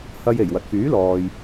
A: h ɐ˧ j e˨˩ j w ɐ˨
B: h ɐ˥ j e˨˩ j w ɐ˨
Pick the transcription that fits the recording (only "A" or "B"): A